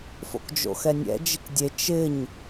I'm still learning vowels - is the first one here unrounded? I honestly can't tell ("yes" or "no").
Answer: no